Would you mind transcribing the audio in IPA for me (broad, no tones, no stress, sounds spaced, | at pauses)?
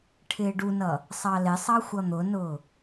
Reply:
ʈʰ ɪː ɖ u n ʌ | sˤ ɑ l ɪ sˤ ɑ xʷ ʌ n̪ ʊ n ʊː